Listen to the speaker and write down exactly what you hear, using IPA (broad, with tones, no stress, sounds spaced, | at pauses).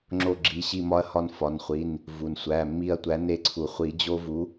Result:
ŋ͡ǁ o˦˨ ɡ͡ǁ i˨˥ ɕ i˦˨ m ɒ˦ ɐ̯ h ɒ˦˨ n f ɒ˩˧˩ n χʷ i˩˧˩ n | v u˩ n sʷ æ˩˧˩ mː i˦˨ ɐ̯ tʷ æ˨˥ n e˦˨ ǀʰ u˩ χʷ i˨˩˦ d͡ʑ o˦ v u˨˥